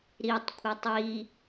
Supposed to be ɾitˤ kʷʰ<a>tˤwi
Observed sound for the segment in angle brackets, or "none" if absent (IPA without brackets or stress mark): æ